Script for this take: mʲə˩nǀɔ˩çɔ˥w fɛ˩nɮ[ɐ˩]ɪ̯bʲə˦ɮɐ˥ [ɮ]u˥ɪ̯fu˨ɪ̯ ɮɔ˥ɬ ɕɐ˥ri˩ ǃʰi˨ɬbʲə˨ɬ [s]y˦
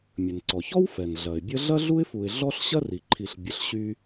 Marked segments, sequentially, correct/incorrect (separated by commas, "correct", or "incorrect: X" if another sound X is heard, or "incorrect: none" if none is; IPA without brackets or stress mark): correct, correct, incorrect: ɕ